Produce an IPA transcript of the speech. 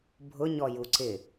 bʱ ʊ ɲ ɔ j u ǀ ɪ

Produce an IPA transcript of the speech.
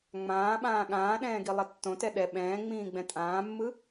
ŋ͡m ãː ɓ ãː ɠ ãː ɗ ɛ̃ː ɡ i lˠ ʌ tː õ t ɛ ɗ ɛ ɓ ɛ̃ː ŋ͡m ĩː ɡ͡b ɛ̃ tʼ ãː mː ɯ

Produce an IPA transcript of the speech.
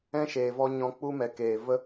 ɛ̃˦ ʃ eː˨ v ɔ˧ ɲ ɔ̃˧ k͡p u˦ m ɛ˨ k eː˨ v ə˦

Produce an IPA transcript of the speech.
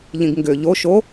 ʎ ĩ ɡ ŋ ɡ ʏ ʎ o ʃ o

